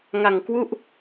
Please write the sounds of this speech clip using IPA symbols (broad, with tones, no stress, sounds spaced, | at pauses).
ŋ a˨˩ ŋ k w u˥˩ ʔ